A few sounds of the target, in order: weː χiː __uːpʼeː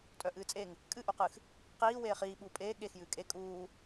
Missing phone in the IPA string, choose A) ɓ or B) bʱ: A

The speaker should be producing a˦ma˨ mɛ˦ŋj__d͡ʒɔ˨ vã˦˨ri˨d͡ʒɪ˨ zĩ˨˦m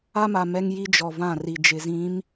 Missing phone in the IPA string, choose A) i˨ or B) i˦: B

